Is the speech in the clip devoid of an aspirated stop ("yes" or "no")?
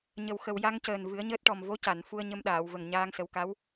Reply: yes